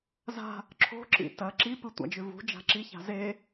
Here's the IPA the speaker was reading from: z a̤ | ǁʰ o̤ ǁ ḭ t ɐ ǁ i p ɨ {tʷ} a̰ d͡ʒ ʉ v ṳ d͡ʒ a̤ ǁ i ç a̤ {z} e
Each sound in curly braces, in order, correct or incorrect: correct, correct

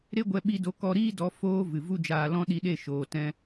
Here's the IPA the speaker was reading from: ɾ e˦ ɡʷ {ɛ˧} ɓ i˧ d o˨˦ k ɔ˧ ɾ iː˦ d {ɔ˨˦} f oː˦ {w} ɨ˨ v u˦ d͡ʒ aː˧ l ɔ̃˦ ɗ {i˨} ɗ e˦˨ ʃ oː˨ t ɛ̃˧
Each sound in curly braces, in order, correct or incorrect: correct, correct, incorrect: v, incorrect: i˧

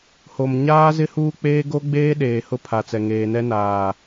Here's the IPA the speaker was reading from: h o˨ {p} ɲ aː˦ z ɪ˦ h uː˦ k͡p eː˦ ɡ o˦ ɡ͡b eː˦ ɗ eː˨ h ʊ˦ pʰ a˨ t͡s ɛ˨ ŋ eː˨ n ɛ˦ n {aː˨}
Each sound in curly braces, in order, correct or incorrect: incorrect: m, correct

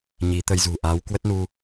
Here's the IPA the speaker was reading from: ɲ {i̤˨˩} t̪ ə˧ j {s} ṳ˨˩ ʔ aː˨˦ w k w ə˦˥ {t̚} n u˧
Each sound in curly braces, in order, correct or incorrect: incorrect: i˨˦, incorrect: z, correct

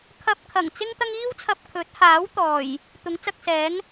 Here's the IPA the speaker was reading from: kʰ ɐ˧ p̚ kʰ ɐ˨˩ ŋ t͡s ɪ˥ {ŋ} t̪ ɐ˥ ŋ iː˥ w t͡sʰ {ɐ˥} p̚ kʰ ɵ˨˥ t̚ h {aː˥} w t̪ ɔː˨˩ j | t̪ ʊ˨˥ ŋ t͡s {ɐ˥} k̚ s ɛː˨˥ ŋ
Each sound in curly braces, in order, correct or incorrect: correct, incorrect: ɐ˧, incorrect: aː˨˥, incorrect: ɐ˧

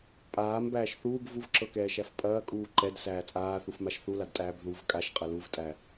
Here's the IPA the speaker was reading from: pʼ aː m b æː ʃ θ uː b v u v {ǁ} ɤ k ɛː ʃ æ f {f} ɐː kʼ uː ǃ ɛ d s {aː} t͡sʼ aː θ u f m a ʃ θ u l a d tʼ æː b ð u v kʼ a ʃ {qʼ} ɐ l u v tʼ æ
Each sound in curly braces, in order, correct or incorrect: correct, incorrect: pʼ, incorrect: æː, correct

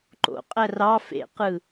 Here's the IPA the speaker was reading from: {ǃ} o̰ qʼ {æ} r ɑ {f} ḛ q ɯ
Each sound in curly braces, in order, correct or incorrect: correct, correct, correct

